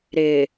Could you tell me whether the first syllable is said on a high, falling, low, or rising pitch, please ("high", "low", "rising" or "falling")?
low